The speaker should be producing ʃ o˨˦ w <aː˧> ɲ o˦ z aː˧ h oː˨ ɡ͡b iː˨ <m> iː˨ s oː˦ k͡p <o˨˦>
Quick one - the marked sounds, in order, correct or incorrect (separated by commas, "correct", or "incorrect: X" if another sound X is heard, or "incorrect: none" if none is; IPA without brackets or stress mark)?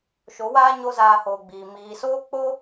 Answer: incorrect: aː˦, correct, incorrect: o˦